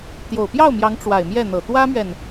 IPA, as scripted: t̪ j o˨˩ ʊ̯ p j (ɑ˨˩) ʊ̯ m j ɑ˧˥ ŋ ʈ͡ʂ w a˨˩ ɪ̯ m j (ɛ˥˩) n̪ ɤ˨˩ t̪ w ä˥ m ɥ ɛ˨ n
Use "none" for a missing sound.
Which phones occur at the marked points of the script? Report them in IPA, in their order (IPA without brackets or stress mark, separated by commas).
ɑ˥˩, ɛ˥˩